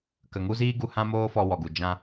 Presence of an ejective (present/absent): absent